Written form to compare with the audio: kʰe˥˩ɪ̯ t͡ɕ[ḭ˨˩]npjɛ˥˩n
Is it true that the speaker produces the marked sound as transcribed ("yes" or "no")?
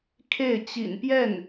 yes